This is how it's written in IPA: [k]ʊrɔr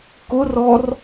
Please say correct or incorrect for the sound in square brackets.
correct